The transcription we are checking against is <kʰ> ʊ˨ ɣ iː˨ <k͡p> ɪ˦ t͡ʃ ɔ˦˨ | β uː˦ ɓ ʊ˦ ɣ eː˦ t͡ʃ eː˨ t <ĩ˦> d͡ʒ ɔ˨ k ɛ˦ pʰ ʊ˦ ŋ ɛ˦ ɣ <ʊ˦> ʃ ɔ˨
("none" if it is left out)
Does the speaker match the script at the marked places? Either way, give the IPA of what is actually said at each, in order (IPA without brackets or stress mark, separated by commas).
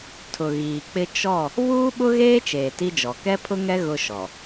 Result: tʰ, k͡p, i˦, ʊ˦